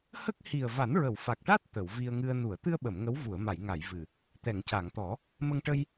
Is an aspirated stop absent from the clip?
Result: yes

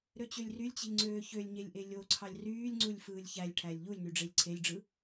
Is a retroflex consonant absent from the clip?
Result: no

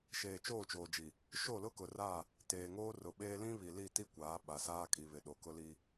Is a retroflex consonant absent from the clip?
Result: yes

